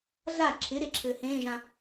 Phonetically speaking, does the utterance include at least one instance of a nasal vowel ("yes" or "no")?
yes